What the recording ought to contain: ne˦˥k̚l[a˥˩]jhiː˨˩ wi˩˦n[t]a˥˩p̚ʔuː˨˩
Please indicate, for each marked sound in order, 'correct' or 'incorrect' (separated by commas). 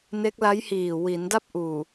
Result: incorrect, incorrect